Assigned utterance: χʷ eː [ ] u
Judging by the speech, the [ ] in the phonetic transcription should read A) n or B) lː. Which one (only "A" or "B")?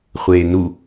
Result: A